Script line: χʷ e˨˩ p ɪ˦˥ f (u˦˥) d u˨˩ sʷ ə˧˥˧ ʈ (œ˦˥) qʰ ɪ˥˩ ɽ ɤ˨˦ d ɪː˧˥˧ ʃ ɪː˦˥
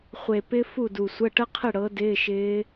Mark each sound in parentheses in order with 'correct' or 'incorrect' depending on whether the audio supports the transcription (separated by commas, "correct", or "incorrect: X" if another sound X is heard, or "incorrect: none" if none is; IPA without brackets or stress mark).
incorrect: u˥˩, incorrect: ə˦˥